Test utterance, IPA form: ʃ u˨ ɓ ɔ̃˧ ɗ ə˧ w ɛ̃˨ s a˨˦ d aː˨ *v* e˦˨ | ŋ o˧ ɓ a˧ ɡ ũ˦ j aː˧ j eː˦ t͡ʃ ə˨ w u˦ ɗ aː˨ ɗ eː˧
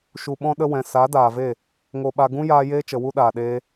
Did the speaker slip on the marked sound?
no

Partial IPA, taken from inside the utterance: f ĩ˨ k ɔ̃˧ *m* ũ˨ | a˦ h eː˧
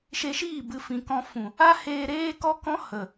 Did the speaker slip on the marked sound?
yes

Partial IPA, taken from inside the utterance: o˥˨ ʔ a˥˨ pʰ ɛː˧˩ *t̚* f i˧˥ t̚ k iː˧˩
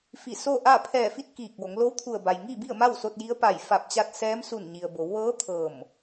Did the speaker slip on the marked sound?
yes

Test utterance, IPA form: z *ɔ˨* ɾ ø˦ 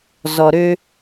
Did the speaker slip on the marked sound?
no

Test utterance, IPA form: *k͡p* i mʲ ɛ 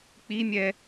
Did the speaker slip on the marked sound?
no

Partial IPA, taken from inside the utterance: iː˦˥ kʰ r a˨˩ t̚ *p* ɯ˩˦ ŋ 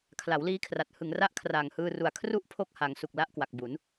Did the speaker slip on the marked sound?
yes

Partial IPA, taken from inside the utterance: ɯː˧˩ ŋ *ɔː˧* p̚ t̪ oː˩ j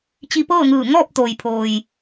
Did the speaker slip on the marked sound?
yes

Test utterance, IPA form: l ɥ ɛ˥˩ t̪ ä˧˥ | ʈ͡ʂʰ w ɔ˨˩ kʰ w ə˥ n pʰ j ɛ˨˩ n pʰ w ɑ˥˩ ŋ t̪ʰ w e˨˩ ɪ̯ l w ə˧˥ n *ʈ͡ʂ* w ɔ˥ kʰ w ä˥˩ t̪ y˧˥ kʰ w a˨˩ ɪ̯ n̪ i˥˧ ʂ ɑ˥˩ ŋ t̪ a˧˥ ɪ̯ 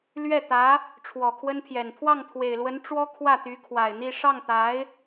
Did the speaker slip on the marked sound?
no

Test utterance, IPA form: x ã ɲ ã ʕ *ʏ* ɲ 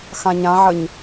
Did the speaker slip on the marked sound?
yes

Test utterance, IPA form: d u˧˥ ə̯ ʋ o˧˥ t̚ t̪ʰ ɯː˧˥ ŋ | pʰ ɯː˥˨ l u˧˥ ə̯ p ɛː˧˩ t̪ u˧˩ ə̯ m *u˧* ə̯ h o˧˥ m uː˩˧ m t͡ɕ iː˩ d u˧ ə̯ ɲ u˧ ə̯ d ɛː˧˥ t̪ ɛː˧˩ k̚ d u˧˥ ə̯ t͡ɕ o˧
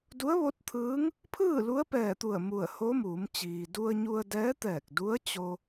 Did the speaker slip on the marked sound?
yes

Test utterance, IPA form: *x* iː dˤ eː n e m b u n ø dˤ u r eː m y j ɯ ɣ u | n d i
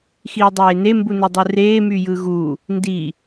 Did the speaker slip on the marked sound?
no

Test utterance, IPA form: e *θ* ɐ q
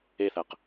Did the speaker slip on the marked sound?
no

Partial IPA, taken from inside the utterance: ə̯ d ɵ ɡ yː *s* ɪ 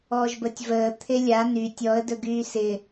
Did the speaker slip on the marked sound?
no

